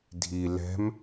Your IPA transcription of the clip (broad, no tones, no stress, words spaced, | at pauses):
dʱi lɛ̤m